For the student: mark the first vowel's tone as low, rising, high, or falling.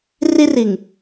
high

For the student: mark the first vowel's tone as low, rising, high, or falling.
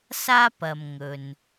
high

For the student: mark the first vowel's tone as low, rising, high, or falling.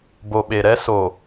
low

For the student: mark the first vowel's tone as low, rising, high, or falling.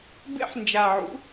high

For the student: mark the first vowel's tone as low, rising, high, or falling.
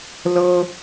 high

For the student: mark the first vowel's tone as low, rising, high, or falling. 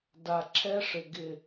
low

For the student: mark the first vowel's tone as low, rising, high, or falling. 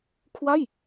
falling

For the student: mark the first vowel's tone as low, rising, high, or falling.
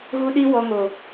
high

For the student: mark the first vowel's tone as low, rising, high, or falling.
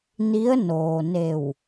rising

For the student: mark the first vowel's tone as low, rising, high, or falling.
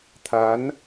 rising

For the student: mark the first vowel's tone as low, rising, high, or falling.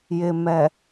low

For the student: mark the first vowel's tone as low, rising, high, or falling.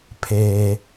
low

